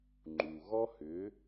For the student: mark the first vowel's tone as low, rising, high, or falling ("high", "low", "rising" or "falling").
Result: low